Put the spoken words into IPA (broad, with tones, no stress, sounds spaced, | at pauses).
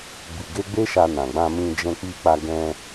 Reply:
b i˨ ɡ e˧ ɡ͡b e˦ ʃ a˧ n ã˨ ɡ͡b ã˧ m ĩ˧ d͡ʒ ɛ̃˧ k͡p i˧ k͡p a˧ ɡ ɛ̃˧